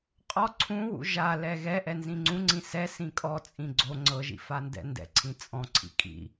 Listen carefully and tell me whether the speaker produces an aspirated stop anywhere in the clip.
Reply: yes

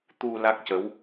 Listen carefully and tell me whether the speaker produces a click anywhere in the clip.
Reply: no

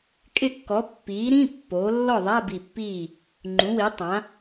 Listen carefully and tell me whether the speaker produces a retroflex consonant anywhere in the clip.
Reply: no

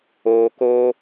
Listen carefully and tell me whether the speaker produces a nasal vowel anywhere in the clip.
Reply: no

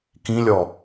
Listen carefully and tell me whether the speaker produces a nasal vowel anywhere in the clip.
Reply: yes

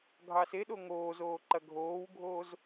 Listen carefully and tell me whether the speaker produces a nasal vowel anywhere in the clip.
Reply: no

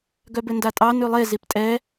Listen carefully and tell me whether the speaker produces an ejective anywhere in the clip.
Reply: yes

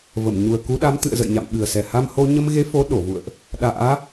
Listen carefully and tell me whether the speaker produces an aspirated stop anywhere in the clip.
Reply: no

